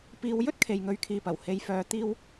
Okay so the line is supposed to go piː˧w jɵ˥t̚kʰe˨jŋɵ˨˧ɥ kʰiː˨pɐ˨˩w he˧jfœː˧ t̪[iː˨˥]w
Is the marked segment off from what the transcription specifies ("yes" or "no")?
yes